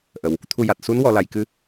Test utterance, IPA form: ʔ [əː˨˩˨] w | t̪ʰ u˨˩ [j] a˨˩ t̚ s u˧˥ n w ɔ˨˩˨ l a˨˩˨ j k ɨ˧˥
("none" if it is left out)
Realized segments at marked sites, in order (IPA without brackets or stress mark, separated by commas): ə˨˩˨, j